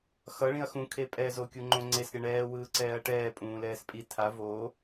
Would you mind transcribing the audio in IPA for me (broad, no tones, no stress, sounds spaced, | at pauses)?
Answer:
x ʌ ɭ ĩ ɐ̯ x ũ kʰ e pʼ ɛ z o kʲ u ŋ͡ǃ õ ŋ͡ǀ e s ɾʲ ʌ ɳ ɛː w ɯː ǀ ɛː ɐ̯ ʈ ɛː pʼ ũː l ɛː s pʼ i tʰ a v o